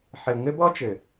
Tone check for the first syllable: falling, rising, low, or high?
low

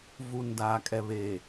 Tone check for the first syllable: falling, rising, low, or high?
low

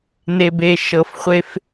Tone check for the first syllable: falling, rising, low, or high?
low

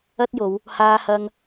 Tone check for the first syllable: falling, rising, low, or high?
high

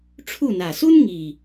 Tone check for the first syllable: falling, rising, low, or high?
falling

